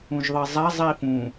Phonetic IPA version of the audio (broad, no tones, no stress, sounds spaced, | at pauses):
ũ ʒ ðˤ i zˤ æ zˤ i f ũ